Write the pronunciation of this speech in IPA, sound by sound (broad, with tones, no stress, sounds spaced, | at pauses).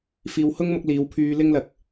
f iː˨ w h ʊ˥ ŋ m ʊ˧ k̚ l iː˨˧ w pʰ yː˧ l ɪ˥ ŋ l ɐ˨ k̚